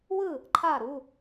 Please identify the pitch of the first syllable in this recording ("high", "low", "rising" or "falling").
falling